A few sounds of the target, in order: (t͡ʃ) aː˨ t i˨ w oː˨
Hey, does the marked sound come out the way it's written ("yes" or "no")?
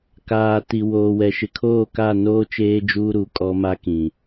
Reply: no